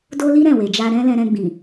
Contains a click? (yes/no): no